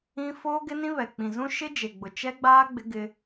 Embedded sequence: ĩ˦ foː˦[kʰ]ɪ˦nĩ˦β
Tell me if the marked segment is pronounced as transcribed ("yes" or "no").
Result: no